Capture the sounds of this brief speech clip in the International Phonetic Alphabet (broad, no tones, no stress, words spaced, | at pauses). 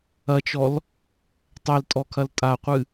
ɐt͡ʃɔl | tˤɛltʼɔkʰɐl tʼaqʷɨ